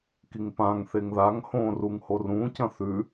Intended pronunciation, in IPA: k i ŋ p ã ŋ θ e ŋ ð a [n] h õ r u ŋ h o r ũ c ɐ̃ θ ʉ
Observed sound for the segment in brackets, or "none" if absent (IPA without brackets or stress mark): ŋ